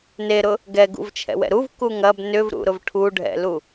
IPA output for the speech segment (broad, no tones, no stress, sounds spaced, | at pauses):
n e ɾ ʊ | ɡ ɛ ɡ ṵ v t͡ʃʰ ɛ̰ w ɛ̰ ɾ u v k u ŋ ɐ b n ʏ v ɾ ṵ ɾ ʊ v ʈʰ u ɖʱ ɛ̰ l u